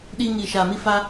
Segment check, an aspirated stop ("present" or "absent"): absent